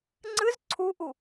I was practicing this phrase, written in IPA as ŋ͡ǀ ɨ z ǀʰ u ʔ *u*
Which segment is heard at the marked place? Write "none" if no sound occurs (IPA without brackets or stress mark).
u